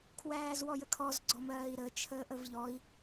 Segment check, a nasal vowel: absent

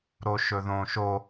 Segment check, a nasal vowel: present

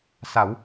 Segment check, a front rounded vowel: absent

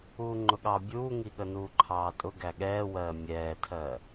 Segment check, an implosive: present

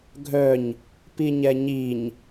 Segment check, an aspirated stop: absent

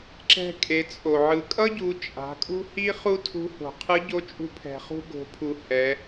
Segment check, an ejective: present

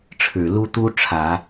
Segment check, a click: absent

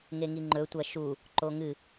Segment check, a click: present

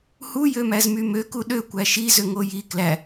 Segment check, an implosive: present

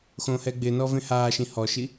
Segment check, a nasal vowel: present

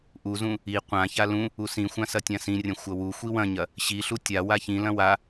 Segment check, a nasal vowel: present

